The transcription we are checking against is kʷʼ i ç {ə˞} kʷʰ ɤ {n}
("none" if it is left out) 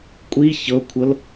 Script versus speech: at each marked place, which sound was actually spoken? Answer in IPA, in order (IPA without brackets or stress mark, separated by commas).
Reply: ɤ, l